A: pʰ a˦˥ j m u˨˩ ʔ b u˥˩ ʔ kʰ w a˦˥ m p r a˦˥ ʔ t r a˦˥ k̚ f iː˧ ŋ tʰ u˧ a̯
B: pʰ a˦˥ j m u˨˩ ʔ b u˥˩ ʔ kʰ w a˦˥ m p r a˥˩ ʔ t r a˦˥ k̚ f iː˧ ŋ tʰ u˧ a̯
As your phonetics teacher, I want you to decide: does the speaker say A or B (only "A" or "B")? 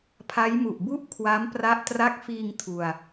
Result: A